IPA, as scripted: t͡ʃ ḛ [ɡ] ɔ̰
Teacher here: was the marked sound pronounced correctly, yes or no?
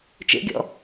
no